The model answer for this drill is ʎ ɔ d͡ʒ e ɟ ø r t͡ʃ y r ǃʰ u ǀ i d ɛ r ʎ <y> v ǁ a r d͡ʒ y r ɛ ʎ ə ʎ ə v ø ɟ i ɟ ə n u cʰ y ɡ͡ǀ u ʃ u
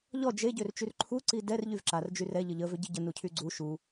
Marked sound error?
no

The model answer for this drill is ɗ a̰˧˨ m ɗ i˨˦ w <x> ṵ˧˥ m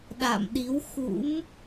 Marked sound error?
no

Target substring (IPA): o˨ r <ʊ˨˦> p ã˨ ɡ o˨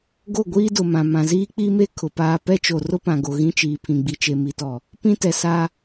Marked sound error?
yes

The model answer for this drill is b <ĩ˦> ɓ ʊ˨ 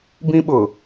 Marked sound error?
no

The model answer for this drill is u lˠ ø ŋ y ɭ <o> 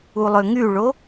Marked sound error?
no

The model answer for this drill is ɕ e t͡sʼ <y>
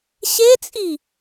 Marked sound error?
yes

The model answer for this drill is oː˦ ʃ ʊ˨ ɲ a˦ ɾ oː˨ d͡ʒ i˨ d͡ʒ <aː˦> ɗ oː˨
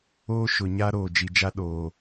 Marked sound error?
yes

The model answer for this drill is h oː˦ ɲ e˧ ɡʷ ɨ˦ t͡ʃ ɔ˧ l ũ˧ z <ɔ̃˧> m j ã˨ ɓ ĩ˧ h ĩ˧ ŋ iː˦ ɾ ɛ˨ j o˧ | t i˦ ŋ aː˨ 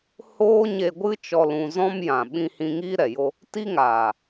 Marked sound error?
yes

